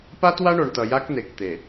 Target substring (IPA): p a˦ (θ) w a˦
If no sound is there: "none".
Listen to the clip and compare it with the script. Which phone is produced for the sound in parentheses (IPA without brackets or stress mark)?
t